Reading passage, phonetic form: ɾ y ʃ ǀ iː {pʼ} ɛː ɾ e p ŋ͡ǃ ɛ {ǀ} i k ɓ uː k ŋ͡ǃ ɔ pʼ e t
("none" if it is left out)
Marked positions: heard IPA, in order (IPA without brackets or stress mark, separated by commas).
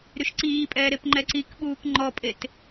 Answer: pʼ, ǀ